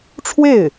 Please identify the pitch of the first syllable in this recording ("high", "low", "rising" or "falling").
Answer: falling